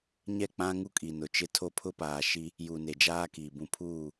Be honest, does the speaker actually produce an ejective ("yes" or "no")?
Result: yes